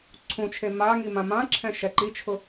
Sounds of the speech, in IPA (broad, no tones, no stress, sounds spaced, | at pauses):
ǀʰ ũ t͡ʃʰ e m a ŋ i m ã m ã ǁʰ ɛ̃ ʃ ɛ ǃ i t͡ʃʰ ʊ